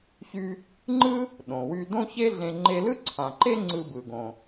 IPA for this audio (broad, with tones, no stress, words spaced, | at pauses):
çy˧ | ŋ͡ǃɯ˥ | ɗõ˩wy˧dõ˥ çe˥ɮẽ˧ ŋ͡ǃe˧lɯ˥ǀʰã˩ǃe˥ ŋ͡ǀɯ˧bɯ˩ ɡõ˩